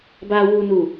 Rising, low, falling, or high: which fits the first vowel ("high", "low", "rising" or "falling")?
low